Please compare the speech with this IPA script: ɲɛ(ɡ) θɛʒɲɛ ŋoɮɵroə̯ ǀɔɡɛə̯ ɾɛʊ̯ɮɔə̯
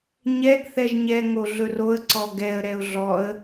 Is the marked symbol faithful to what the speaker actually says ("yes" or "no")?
yes